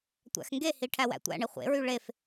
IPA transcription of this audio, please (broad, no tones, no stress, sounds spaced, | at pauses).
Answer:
tʷ æ̰ x ŋ ɡ e h i ʈʰ æ w æ̰ tʷ æ̰ ɳ e χʷ ḛ ɹ y ɭ e f